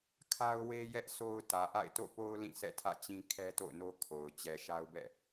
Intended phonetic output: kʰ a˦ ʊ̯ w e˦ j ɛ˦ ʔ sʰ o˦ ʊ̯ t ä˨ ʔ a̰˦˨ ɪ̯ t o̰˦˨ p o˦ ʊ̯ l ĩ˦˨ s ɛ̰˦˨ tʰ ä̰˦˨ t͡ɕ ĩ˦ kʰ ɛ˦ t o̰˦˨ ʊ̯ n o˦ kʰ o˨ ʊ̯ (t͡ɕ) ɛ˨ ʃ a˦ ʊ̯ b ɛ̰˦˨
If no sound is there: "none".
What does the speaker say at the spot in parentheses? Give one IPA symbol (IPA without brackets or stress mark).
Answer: t͡ɕ